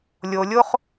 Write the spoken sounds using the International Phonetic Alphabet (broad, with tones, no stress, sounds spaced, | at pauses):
lʲ o˨ lʲ o˦ χ